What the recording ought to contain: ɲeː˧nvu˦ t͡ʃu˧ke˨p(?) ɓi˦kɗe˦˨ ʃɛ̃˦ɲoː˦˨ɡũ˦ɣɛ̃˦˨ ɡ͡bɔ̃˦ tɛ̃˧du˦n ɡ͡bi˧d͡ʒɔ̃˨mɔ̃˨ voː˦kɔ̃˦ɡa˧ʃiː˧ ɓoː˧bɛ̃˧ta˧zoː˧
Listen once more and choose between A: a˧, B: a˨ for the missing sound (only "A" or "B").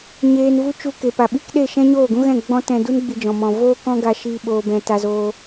B